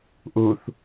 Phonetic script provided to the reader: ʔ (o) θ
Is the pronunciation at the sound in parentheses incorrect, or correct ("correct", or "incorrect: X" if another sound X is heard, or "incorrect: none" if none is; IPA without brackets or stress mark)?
incorrect: u